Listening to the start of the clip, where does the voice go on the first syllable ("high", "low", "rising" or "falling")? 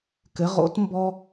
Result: rising